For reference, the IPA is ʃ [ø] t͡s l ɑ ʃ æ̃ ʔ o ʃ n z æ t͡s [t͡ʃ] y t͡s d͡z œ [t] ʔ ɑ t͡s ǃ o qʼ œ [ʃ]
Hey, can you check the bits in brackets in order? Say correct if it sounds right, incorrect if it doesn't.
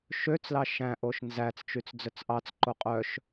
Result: correct, correct, incorrect: t͡s, correct

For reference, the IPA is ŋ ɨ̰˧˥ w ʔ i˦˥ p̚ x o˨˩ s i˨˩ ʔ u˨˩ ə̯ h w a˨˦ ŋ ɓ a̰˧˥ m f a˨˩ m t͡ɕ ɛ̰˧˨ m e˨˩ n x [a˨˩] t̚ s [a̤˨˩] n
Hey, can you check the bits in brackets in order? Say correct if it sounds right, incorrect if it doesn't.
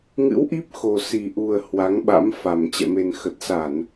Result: incorrect: ə˨˩, incorrect: a˧˩˨

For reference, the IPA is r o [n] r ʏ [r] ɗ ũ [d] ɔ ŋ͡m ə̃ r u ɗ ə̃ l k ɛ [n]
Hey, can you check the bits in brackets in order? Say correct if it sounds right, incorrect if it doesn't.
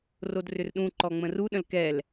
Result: incorrect: d, correct, incorrect: ǃ, incorrect: l

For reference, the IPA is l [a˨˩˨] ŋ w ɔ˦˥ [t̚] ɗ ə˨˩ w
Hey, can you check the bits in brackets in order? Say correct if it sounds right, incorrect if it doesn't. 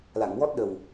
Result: correct, correct

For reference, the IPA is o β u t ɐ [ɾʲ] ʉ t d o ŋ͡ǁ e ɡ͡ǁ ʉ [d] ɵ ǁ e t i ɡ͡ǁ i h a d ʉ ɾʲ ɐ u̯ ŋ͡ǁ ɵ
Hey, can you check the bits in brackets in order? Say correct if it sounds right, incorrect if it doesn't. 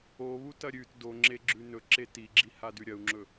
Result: correct, incorrect: n

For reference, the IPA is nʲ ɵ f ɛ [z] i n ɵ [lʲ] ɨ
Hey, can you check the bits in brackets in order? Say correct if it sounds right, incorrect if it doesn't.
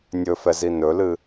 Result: correct, incorrect: l

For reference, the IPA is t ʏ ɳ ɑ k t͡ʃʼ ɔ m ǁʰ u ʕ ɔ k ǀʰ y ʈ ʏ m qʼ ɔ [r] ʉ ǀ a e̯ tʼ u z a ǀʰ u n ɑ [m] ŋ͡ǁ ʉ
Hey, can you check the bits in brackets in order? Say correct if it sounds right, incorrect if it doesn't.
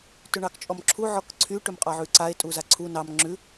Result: incorrect: ʕ, correct

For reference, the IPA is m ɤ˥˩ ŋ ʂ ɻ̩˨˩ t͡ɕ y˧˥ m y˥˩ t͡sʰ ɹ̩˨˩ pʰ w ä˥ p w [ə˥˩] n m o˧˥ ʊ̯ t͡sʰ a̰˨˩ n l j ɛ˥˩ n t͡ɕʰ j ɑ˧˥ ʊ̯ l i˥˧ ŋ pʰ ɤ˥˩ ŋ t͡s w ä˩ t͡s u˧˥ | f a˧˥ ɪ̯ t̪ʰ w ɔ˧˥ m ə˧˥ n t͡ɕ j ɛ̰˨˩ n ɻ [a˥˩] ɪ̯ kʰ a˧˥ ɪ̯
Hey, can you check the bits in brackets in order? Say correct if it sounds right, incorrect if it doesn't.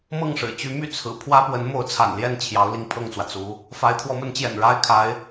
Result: incorrect: ə˧˥, incorrect: a˥

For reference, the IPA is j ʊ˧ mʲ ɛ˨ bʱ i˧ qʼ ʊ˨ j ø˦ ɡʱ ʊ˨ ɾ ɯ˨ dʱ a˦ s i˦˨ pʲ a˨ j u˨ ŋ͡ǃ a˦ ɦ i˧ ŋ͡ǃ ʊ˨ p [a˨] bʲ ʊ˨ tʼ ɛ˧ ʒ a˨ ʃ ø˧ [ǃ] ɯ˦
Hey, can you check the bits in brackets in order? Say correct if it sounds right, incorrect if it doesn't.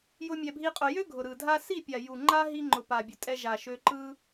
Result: correct, correct

